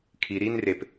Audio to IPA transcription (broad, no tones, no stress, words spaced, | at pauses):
kʰi ɾin rep